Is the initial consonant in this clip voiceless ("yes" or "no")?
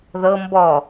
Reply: no